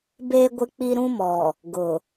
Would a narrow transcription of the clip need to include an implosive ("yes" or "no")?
no